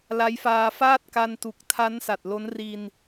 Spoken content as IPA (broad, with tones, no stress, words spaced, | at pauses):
la˦˥jfaː˧faː˥˩t̚ ka˧ntu˨˩k̚tʰa˦˥n sa˨˩t̚lo˦˥n ri˧n